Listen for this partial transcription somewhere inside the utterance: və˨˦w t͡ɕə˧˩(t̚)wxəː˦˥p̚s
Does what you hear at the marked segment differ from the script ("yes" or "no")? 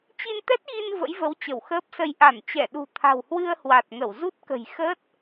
yes